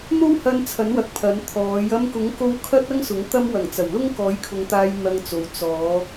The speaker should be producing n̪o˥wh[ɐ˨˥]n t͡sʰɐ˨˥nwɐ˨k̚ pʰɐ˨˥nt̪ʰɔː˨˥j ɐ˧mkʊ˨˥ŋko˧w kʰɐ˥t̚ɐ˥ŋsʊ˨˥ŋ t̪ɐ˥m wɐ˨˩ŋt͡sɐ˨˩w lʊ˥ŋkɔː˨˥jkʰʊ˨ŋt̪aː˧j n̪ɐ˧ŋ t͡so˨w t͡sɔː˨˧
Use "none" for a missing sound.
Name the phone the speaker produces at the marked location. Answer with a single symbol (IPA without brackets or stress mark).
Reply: ɐ˧